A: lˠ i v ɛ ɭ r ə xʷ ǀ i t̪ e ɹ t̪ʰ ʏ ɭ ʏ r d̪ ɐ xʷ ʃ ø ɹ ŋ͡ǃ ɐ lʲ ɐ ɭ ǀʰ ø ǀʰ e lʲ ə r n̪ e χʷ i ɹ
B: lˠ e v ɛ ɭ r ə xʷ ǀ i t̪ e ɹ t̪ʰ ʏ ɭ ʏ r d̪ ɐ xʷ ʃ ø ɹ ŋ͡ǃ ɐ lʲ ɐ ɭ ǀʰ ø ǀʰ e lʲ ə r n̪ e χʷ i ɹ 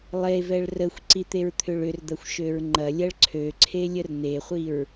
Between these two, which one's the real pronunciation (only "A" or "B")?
B